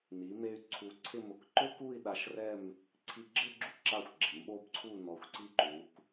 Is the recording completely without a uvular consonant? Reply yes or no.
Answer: yes